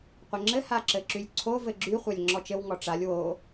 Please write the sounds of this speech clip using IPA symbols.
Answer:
qʷɘŋ͡ǁɘ haǁɘǁylʲǀʰo vɘɡ͡ǁy χʷalʲŋ͡ǁɔt͡ʃɘw ŋɔʈ͡ʂalʲ wo

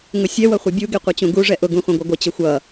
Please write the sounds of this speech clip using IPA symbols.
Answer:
ŋʊsʲɛ wʌχʷʌbʲu ɡeqʷʌt͡ɕũɡu ʐɛʔʊ ɡũχʷɛ̃ɡʷʌɡʷɘ t͡ɕɘxʷʌ

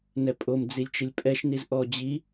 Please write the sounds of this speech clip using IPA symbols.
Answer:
nɛpʼom d͡zilʲt͡ʃɪlʲpʼɛʃ nizʔɔ d͡ʑi

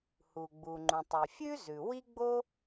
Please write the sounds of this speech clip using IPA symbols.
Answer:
hu˩ɡ͡bu˩ŋ͡ǃũ˩ tˤi˩fʲʉ˥ zʉ˩wi˥ɡ͡bo˥

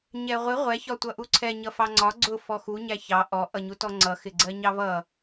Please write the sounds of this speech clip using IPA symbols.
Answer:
ɲɛʁʷɪ ʁʷɛ çɒtʷʌʔuǀʰɛ ɲʌfɑŋ͡ǀɒ ɡ͡ǀʊ fɔxu ɲæçɑ ʔɔ ʔʌɲutɔŋ͡ǀʌ xɪɡ͡ǀɜɲɑvʌ

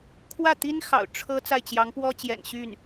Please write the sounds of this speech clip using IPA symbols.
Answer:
kʰwä˥˩t̪i˥nxɑ̰˨˩ʊ̯ ʈ͡ʂʰɤ˥ t͡sa˥˩ɪ̯t͡ɕjɑ˧˥ŋ pwɔ˥t͡ɕjɛ̰˨˩nɕy˥˩n

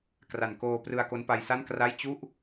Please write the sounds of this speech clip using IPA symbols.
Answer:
kra˨˩nkoː˧prɯ˧a̯ ko˦˥npa˧jsa˥˩n kra˥˩j t͡ɕu˥˩ʔ

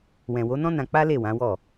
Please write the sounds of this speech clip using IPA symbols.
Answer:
wɛ̃˨wo˨˦nɔ̃˦ nã˧k͡pa˦ le˦˨wã˨˦wɔ˦˨

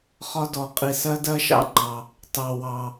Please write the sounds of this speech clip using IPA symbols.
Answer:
χɒ˥dɔ˧qʼi˧ sɜ˥dɜ˥ʃɑ̰˥ŋ͡ǃɑ˧ | tɑ˧wɑ˧

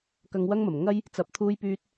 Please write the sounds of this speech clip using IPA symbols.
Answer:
kɐ˧ŋwɐ˥ŋmɐ˨˩m ŋɐ˥j | t͡sɐ˧p̚t̪ʰuː˥jpyː˥t̚

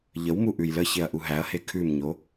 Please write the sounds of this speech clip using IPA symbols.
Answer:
ʎəwmu ʔʉjləçeɐ̯ ʔuɦæɐ̯he kʰʉmɲo

